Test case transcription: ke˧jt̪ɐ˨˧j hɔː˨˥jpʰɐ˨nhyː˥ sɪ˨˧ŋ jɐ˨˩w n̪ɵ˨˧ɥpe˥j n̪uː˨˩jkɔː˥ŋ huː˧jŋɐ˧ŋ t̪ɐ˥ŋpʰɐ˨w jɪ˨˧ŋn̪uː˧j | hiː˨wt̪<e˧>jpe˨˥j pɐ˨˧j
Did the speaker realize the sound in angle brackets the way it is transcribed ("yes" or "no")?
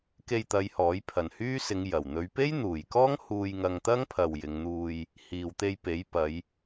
yes